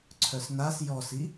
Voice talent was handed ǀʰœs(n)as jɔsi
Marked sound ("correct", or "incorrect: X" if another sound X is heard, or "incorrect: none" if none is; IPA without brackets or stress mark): correct